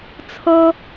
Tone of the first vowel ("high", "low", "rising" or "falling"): high